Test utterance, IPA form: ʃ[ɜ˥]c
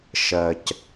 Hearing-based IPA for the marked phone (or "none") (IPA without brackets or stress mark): ɜ˨